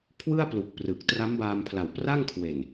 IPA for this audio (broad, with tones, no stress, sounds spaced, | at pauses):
kʰ w ɯ˥˩ a̯ p l u˨˩ k̚ p r ɯ˨˩ k̚ t r a˦˥ m b aː˧ m pʰ l a˨˩ w p r a˥˩ ŋ kʰ w e˨˩ n